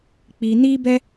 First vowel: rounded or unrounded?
unrounded